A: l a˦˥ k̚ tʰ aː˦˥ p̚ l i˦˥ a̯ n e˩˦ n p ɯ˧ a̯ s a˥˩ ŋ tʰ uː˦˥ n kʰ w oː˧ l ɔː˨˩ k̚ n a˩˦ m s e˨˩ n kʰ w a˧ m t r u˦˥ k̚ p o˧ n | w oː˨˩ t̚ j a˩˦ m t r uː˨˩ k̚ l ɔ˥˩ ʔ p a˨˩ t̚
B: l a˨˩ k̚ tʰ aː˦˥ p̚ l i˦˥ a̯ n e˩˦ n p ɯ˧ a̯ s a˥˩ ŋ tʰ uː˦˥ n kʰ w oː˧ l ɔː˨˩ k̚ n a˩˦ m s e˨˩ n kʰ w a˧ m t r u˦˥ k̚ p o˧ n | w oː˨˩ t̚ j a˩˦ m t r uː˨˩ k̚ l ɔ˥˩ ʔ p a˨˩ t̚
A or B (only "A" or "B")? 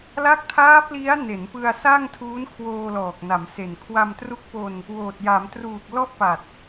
A